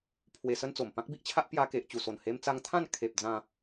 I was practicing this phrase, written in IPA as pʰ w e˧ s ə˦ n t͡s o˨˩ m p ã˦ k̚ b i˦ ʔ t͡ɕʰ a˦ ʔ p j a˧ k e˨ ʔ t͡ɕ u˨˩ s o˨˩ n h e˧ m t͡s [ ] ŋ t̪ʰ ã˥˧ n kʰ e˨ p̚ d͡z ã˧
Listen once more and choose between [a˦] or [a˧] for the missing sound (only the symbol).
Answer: a˧